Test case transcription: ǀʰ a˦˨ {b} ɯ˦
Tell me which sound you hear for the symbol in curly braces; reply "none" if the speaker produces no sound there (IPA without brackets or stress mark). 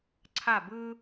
b